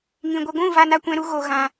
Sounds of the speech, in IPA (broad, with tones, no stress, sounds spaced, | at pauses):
ŋ ĩ˨ ɡʷ ə˧ ɡʷ ũ˦˨ v a˧ n a˧ kʷ ɛ̃˧ ɾ u˦ ɣ o˧ ɣ ã˧